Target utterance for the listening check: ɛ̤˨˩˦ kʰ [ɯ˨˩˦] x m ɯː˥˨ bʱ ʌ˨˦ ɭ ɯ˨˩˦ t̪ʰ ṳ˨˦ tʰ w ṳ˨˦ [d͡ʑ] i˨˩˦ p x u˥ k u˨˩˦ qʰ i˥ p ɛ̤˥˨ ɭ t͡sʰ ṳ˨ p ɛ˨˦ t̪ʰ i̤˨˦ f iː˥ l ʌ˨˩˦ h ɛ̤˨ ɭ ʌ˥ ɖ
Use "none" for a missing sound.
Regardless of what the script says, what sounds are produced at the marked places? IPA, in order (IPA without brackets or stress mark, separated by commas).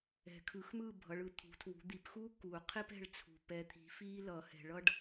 ɯ˨˩˦, d̪